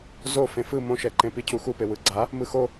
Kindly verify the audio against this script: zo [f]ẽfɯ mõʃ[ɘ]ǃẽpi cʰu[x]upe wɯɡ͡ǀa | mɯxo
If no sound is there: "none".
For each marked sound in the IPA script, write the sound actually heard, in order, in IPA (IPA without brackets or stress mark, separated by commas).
f, ɛ, x